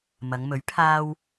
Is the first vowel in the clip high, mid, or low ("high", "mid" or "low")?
low